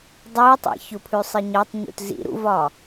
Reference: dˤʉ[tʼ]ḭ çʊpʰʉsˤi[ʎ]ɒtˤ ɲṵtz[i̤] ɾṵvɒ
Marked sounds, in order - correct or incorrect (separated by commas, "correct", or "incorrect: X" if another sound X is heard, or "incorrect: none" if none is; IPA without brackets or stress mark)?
incorrect: tˤ, incorrect: ɲ, incorrect: ḭ